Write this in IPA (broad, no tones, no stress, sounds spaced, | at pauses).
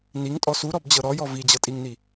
n i ŋ tʼ ɔ s u ɾ ɔ b d͡ʑ ɤ ɾ ɔ j ɔ v i d͡ʑ ɤ tʼ i ŋ n i